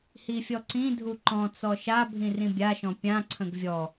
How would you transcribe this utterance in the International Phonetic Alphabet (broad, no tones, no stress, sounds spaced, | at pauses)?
h i fʲ ɔ ǀ ĩ dʱ u ǃ ɔ̃ t͡s ɔ ʃ a bʱ ĩ r ĩ bʲ a ʃ ɔ̃ pʲ ã ǀʰ ə̃ ɡ vʲ ɔ